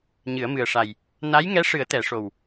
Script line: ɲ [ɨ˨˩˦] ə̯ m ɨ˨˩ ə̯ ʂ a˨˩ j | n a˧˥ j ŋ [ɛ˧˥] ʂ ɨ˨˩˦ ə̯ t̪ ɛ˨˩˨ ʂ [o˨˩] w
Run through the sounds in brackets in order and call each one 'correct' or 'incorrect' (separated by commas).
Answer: correct, correct, correct